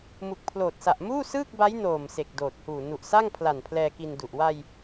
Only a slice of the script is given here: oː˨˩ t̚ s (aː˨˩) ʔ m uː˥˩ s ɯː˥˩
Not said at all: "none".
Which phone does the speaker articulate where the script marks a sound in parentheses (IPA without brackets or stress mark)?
a˨˩